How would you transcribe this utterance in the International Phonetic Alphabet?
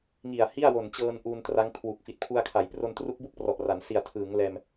ŋi˨˩a̯hi˥˩a̯wo˨˩nt͡ɕɤː˧n ʔuː˧ntra˦˥ŋkʰwu˨˩k̚ fi˨˩t̚pʰu˧a̯kʰa˩˦j pro˧ntru˦˥k̚bu˥˩k̚ prɔ˨˩ʔra˩˦n si˨˩a̯tʰɯː˩˦ŋ lɛː˧m

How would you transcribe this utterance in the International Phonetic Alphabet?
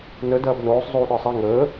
nə dɐːbnoːsˤ zˤuːɗə˞sˤe ŋəː

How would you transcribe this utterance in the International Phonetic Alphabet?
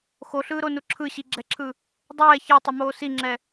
xoɬɯːɾonu ǁʰɯɕiɡ͡ǁɛǁʰɯ | dˤɛː çɛtˤʌmoː siŋ͡ǁɛ

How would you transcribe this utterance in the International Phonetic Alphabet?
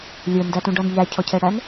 lʲə˞ndætũɖʌn ʎæcʰɔcʰɛɽæn

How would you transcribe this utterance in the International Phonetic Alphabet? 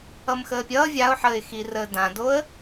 ʌmxəːpʲʌː vʲaʊ̯ħəːɪ̯xi rəːdãdoə̯

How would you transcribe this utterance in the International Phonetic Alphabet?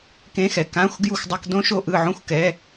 kẽ˧˥˧xɛ˨ kã˧˥˧xʷ ɡju˥˩xʷdˤʌ˧˥˧k dõ˥ ʃo˥˩ʔɯ˥˩ ʕõ˥˩xʷ kɛ˧˥˧

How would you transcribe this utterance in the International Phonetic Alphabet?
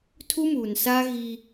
tʰu˦muː˨nsaː˦ ɣi˦

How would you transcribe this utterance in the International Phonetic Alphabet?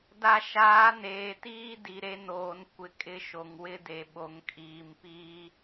da˨ʃaː˨˦ neː˨tiː˦ di˨ɾe˦noː˨n kʷɪ˨kʼɪ˦ʃo˨ŋ wɪ˦de˨ ɓo˨ŋkʼiː˨mpiː˦

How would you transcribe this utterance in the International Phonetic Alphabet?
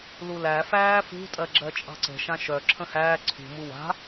lulæ fæːfṳtʼɜɡ͡ǁɜ t͡ʃʼɑ̤ǀə̤ ʃãʃœ ǁʰə̃hæː ǀʰṳmu wa̤

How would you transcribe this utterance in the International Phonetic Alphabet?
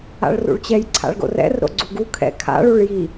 a̰ɭrṵɭt͡ɕɛj ǀʰa̰ɭɡo̰rɛ̰rɾo̰ ɡ͡ǀuɡu kʰɛ̰ kʰa̰ɭuɭ ji

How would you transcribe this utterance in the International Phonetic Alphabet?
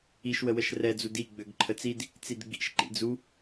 iʃwəwəʃ rɛd͡zud iɡ͡bøɡ ǃʰət͡sid | t͡sidɡ͡bḭʃ ǃḭd͡zu

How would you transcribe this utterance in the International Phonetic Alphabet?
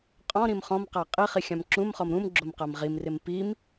qʼɔ̃ɾĩm χɔ̃mqa qʼiχi xʲãmǁũmχɔm ɾũm ɡ͡ǁomqamʁimrɪm pim

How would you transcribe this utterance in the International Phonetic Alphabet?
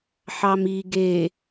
ħɑmi ɡe

